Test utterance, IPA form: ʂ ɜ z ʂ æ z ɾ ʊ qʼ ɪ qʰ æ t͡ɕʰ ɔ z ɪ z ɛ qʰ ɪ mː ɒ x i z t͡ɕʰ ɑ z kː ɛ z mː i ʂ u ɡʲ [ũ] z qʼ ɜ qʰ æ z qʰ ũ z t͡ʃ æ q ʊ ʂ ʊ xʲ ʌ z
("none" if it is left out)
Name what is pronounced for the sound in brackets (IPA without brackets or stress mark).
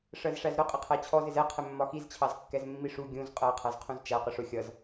ũ